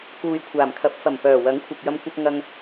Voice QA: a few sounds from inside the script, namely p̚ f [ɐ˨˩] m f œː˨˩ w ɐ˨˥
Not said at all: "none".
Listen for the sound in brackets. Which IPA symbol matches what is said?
ɐ˨˩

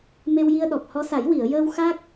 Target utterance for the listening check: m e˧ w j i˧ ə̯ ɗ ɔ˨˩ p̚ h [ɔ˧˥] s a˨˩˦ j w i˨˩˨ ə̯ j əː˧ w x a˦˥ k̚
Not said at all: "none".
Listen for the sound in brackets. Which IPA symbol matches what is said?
ɔ˧˥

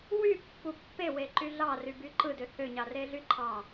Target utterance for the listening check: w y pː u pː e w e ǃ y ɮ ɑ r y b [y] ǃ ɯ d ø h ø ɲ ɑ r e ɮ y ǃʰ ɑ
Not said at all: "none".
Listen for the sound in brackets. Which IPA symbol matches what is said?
y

